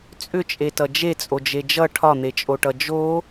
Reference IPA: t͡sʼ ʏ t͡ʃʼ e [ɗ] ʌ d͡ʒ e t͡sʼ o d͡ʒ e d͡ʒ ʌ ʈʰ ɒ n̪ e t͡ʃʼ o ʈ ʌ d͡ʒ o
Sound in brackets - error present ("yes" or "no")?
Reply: yes